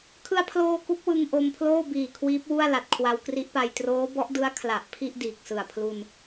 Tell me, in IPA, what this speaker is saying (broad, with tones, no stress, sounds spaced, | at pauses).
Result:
kʰ ɯ˧ a̯ pʰ l oː˧ k u˦˥ k̚ w ɯ˧ ŋ ʔ o˧ m pʰ l oː˥˩ b iː˨˩ kʰ w iː˦˥ p̚ w u˥˩ a̯ l a˨˩ t̚ kʰ w a˧ w k r i˦˥ ʔ p a˧ j t r oː˦˥ b ɔ˦˥ ʔ d ɯ˦˥ a̯ kʰ l a˨˩ ʔ pʰ i˥˩ ʔ d iː˨˩ k̚ s ɯ˨˩ a̯ pʰ l u˧ n